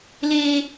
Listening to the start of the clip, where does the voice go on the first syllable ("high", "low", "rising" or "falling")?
high